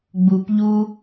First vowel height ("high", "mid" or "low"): high